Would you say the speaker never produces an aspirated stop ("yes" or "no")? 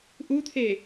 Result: no